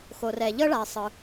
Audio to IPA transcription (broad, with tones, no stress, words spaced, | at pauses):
xo˩rɛ˩ ʎɤ˥ɭa˩e̯sˤɯ˩